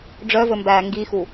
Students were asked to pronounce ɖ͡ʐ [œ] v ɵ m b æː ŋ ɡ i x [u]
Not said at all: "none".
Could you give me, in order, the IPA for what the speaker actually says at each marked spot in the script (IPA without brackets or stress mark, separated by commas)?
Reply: œ, u